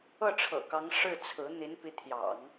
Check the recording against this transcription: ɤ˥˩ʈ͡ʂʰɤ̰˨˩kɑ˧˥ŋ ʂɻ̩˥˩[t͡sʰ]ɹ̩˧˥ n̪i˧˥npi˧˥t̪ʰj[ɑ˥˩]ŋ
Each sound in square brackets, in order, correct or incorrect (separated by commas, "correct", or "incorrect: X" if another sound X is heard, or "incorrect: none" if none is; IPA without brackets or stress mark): correct, incorrect: ɑ̰˨˩˦